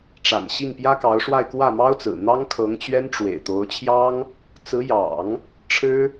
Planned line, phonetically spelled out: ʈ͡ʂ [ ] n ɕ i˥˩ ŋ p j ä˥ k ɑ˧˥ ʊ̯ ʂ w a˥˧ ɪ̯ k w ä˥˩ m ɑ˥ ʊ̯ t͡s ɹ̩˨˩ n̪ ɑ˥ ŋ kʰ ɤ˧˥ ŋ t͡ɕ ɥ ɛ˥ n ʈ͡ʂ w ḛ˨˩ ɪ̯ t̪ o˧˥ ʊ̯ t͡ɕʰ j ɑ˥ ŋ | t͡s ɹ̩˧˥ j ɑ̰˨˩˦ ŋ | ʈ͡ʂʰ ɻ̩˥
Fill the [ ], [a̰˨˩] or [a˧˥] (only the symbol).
a̰˨˩